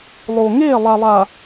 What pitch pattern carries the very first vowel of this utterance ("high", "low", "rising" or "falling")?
low